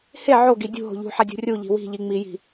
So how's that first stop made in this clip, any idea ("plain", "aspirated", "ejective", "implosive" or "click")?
plain